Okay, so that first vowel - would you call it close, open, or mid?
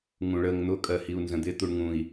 close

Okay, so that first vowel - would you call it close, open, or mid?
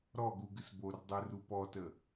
mid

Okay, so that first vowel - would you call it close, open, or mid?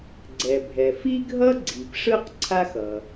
mid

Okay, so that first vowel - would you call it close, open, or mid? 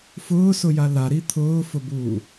close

